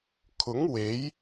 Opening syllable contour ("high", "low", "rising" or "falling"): rising